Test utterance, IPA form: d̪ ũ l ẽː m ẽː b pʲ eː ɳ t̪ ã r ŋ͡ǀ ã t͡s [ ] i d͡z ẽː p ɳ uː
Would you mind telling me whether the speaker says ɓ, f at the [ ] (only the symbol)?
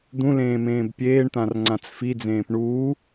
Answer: f